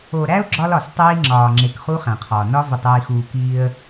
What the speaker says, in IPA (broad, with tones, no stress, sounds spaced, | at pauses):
o˨ ɾ æ˦ ʊ̯ ɡ͡ǁ ɒ˦ l ɒ˨ s tˤ iː˦ ŋ͡ǁ ɒː˨ ŋ͡ǁ e˨ k χ u˦ χ æ̃˨ qʰ ɒː˨ n ɒ˦ v i˨ tˤ iː˨ x uː˨ k iː˦ ə̯